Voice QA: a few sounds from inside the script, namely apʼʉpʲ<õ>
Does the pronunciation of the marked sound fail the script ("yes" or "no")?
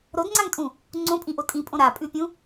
yes